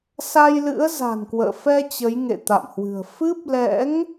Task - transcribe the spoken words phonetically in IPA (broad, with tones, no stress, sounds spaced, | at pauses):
s a˧ j l ɨ̰˧˥ ə̯ z a̤˨˩ n k w ə̰ː˧˨ f ɛ˧ t͡ɕ ə˨˦ j ŋ ḛ˧˨ t̪ a̰˧˨ m h w ɨ̤˨˩ ə̯ f ɨ˦˥ p̚ l ɛ̰˧˥ ŋ